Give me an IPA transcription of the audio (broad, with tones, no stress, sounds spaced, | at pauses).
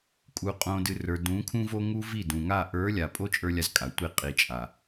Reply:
kʼ u˨ qʼ õ˨ d ɨ˨ r ə˞˨ d ũ˨˦ kʰ ũ˦ v o˦ ŋ u˦ v i˦˨ d ũ˨ ŋ a˦˨ ʔ ə˞˨˦ lʲ a˨ pʼ o˦ t͡ʃʼ ə˞˦ lʲ a˦ z kʼ a˨ tʷ i˦˨ qʼ i˨ t͡ʃʼ a˨